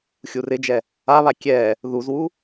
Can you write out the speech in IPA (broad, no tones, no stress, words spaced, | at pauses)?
xʲurɪd͡ʒɛ | aβa kʲɛ | ðuzwu